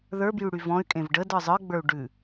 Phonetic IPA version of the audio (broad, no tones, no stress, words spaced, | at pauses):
ðə˞bjy ɽyvɔ̃y̯kʼẽv ɖəd ə˞zˤə˞ɡ͡bə˞u̯ ɖʉ